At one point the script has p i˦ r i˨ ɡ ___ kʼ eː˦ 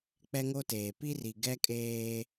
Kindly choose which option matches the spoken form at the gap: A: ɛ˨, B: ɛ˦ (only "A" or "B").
B